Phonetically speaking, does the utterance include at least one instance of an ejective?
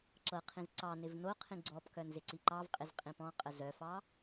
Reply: yes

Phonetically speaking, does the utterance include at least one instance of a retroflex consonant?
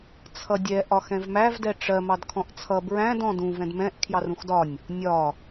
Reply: yes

